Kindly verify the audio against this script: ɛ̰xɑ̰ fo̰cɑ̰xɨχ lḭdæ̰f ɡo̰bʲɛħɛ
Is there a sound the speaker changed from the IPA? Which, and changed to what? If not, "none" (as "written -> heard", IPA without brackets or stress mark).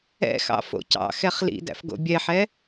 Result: ɨ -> ɛ